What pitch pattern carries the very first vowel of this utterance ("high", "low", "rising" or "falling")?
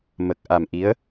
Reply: low